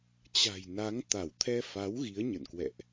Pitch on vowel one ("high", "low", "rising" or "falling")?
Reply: low